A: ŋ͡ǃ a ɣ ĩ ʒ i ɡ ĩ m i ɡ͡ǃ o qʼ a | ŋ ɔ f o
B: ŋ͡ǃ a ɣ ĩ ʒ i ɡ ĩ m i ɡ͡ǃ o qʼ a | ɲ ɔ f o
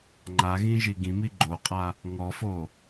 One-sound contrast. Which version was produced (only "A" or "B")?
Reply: A